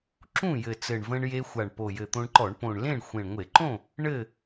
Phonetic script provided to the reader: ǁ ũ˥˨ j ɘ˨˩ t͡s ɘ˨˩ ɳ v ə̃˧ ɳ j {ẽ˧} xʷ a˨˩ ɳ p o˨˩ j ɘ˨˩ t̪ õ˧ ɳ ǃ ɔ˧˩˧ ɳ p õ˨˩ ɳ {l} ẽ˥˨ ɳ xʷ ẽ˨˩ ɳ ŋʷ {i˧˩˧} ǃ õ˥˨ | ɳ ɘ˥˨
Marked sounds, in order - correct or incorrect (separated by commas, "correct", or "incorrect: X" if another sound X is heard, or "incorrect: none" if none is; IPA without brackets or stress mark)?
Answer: incorrect: e˧, correct, incorrect: e˧˩˧